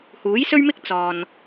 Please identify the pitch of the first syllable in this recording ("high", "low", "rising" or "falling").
rising